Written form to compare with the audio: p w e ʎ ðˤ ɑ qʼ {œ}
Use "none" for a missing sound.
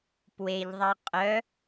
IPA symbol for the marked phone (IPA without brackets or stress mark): œ